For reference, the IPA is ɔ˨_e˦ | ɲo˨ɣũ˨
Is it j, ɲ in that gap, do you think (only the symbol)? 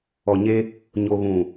ɲ